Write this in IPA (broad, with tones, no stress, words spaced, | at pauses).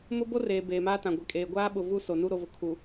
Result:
mʊ˦ bo˦reː˨ beː˨maː˦tã˨ ɡʷe˨kʼeː˨ ɡʷaː˦ɓʊ˨ vu˦˨ so˨nu˦ ɾo˨vʊ˨ kʰu˨